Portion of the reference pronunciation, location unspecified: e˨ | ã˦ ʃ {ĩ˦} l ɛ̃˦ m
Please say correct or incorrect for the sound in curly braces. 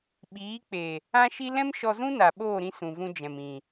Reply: incorrect